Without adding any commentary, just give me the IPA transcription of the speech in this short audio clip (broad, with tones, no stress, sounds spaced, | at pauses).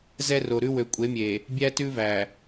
z ɛ˦ r o˨ ɾ ʉ˦ w ø˨ kʷʼ e˨˦ mʲ e˨ | bʲ æ˦ t ʉ˦ v æ˨